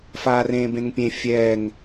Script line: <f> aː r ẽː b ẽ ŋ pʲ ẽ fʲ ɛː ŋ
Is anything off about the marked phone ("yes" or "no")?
no